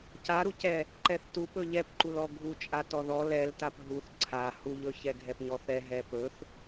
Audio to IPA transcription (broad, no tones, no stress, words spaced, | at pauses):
caɾucɛ | ǃɛθtup ɵʎɛpǃulɔ ɡʱut͡ʃʼa tɔðɔ lɛltap ɦuθ ǀʰa huʎɵ çɛɡʱɛpɲɔθɛ ɦɛpɵθ